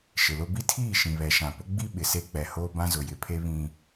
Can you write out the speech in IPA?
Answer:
ʃ ɪ˨ l ʊ˦ b i˦ tʰ iː˦˨ ʃ ĩ˨ β ɛ˨ ʃ ã˨ p ʊ˦ ɡ͡b i˦ ɓ ɪ˨ s e˦ k͡p ɛ˨ h oː˦ b ã˦ z ʊ˨ j ɪ˨ pʰ e˦ β ĩ˦

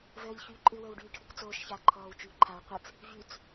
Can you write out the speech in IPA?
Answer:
v əː ʎ ç yː ǃʼ ɨ w əː w ɖ yː ʈʰ ɨ k t͡s oː ʃ ç aː ǃʰ ɔː w t͡ʃ yː ǃʰ a w qʷ ə t͡s | v y t͡s

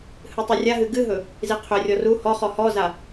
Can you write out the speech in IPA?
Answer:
h ɨ tˤ u rʲ a ɦ ɨ ɡ ɨ ɦ ɵ | z i qʰ ʏ rʲ ɔ r u h ɔ χ ɔ h ɔ z a

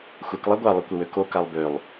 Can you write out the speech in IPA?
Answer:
xʷ e k lˠ a ɡʷ a lˠ i kʷ e w ø k o k a lˠ b ø lˠ

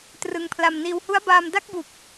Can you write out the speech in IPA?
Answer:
t r ɯ˧ ŋ pʰ l a˧ m n iː˧ w h u˦˥ a̯ b aː˧ m d a˦˥ k̚ b u˨˩ k̚

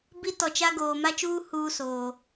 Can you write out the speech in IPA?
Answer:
b i˦ t ɔ˨ t͡ʃ a˦ ɡ oː˨ m a˦ t͡ʃ uː˦ h uː˦ s oː˨

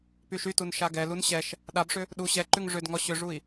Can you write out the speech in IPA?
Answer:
p y ʃ y t u n ʃ a ɡ ɛ l u n ɕ ɛ ʃ | ɗ a b ʂ ʏ | ɗ u ɕ ɛ ǃ ʉ ŋ ʐ ʏ d ŋ ɔ ɕ ʏ ʐ u i̯

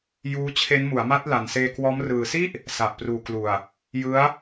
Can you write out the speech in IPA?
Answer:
j uː˦˥ t͡ɕʰ e˦˥ n m u˩˦ a̯ m a˦˥ t̚ l a˨˩ n s eː˧ k w ɔː˦˥ m r ɯː˨˩ s i˥˩ ʔ | s a˨˩ ʔ p r uː˨˩ k l u˨˩ a̯ | j ɯ˦˥ a̯

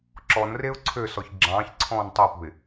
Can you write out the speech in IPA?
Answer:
ǁ ɔ n r e ʊ̯ ǀʰ ø s ɔ ç ɡ͡ǁ ɑ̃ː ç ǀʰ ɔ̃ː n tˤ ø p ṳ ɪ̯

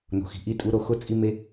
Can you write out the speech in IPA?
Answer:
n o̤˩ x i̤˩ ʔ i˥ tʼ u˦ ɾ o˨ x ʊ˥ t͡sʼ i˥ m e˥

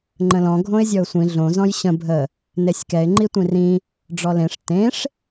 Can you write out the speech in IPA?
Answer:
ŋ͡ǃ ə̃ l ɔ̃ ɡʱ õ ɪ̯ zʲ ɔ ʊ̯ sʷ ĩ ɮ õ z ɔ̃ j ɕ ə̃ bʱ ə | n e sʲ k ɛ ɪ̯ ŋ͡ǃ i tʷ ĩ r ĩ | ɖ͡ʐ ɔ l ẽ ʂ t ẽ ʂ

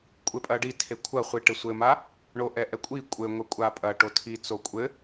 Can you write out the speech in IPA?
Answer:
kʷʼ e pʼ ɐ ɖ i tʰ e kʷʰ ɐ χʷ i ʈ ɘ sʷ ɘ m a | ɳ o ʔ ɛ ʔ ɛ kʷʼ i kʷʼ ɘ ŋʷ ɛ kʷʼ a pʼ ɐ ʈ o tʰ i t͡s o kʷʼ ɘ

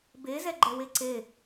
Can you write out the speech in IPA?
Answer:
b e z ɛ ɡ͡ǃ ɛ w e ǀ e

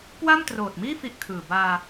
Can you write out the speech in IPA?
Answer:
k w a˥˩ m t r oː˨˩ t̚ m iː˥˩ f i˥˩ ʔ kʰ ɯː˨˩ b aː˧

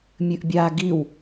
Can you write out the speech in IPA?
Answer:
mʲ ɨ ʔ bʲ a ɡ i w

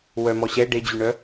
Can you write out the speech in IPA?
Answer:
w œ m ɔ ɕ ɛ ɖ e d͡ʑ y ɳ œ

